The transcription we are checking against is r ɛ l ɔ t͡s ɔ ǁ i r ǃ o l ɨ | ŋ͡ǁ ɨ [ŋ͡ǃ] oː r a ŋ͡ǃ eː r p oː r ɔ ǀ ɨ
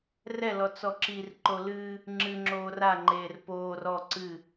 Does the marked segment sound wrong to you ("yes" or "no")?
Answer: yes